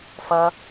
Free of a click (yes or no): yes